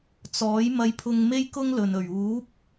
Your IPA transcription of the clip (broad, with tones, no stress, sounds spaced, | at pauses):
t͡s ɔː˨˥ j m ɐ˧ j pʰ ʊ˧ ŋ m e˥ j k ʊ˥ ŋ l ɵ˨ n ɵ˨˩ ɥ uː˨˥ p̚